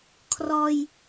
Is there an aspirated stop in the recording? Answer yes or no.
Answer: yes